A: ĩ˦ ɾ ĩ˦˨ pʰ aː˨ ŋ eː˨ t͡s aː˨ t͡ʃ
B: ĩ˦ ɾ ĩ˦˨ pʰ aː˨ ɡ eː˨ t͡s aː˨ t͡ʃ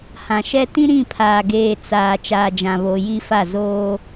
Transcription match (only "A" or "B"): B